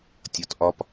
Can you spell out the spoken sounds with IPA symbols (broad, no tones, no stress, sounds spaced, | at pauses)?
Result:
tʲ ɒ t ʔ ɒ p